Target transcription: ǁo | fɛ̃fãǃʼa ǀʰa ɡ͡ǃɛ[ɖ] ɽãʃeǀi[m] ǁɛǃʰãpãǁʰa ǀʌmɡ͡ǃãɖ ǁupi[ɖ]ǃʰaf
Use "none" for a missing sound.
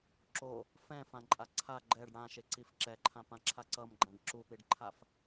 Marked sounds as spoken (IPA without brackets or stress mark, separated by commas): ɖ, f, ɖ